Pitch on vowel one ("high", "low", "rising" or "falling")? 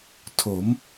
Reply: rising